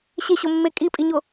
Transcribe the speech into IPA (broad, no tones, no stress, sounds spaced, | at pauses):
ɕ e ɕ o mː e kʼ i pʼ i ɲ o